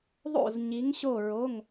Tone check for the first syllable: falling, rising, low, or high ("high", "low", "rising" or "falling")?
falling